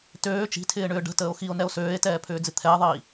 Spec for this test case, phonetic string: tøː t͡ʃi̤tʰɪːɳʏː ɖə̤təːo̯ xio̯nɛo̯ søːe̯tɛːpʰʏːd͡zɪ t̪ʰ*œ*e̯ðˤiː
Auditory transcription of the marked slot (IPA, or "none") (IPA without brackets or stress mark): ɛ